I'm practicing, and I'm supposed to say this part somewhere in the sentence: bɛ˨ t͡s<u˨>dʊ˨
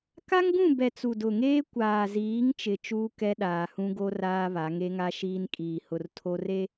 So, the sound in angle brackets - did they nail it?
yes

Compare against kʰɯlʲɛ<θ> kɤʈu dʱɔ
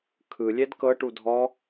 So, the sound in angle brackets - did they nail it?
no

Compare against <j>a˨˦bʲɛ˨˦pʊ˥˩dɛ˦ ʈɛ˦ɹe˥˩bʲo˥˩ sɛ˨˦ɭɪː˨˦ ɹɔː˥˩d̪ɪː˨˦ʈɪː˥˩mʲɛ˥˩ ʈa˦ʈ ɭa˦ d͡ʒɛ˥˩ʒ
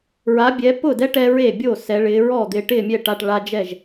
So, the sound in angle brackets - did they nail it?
no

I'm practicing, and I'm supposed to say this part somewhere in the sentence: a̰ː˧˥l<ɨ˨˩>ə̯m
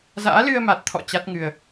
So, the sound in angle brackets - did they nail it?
no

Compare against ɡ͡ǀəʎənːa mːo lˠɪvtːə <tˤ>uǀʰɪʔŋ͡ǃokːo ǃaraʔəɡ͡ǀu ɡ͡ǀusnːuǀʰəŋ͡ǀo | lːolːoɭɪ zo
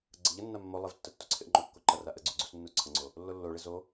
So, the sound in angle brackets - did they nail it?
no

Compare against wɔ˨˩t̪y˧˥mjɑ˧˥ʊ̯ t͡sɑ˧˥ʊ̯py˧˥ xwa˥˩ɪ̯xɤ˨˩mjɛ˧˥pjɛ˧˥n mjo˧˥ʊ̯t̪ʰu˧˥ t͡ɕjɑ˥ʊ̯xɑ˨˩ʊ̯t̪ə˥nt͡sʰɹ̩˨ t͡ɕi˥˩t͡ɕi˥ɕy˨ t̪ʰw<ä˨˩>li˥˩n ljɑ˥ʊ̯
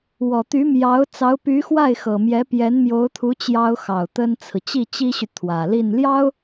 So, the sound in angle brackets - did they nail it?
yes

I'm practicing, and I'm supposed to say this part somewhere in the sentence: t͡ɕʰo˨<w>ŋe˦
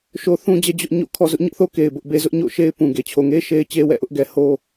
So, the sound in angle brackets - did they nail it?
no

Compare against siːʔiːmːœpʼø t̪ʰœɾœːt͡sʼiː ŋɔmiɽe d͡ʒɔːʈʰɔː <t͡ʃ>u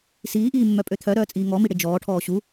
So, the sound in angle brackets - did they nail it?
no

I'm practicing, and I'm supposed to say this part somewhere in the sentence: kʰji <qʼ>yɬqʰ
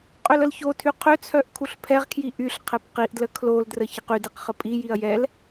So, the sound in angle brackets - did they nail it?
no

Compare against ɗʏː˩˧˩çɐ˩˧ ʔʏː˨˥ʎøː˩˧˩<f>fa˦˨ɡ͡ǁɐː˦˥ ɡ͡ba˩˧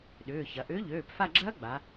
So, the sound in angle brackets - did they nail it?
no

